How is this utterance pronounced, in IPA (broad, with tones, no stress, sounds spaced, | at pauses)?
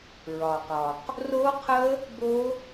ɹ ɒ˩ q ɒ˩ q | r o˦˥ qʰ ə˦˥ | b o˦˥